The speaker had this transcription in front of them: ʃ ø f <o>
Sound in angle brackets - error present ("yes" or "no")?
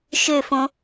yes